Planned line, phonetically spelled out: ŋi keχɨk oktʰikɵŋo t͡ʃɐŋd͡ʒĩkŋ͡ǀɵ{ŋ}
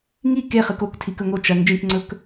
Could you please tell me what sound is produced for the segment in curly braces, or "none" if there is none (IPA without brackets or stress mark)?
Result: k